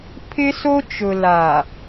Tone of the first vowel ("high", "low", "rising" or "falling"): high